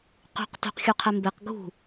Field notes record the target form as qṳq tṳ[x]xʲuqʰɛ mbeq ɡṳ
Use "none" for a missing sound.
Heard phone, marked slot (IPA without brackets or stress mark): q